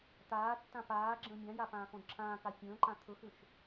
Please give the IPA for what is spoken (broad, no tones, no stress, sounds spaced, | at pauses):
t̪ aː tː ã p aː ɡ͡ǁ ə̃ː mʲ ã j a p ãː x õ d ǁʰ ãː k a fʲ ə̃ː ǃ ã t̪ʰ ɵ x ʏ ʃ